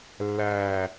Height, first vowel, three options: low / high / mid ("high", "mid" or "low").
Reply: low